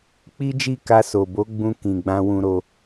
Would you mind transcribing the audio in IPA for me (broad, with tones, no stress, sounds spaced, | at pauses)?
k͡p i˦ d͡ʒ i˦˨ k a˧ s o˨ b o˨˦ ɡ͡b ũ˧ k ĩ˨ ɡ͡b ã˧ w ũ˧ ɾ o˧